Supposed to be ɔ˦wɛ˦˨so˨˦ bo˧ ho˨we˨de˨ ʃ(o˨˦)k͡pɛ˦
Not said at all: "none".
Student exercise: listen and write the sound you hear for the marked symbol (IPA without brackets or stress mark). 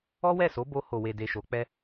o˨˦